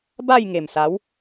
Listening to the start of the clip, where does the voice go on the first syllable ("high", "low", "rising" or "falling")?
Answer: falling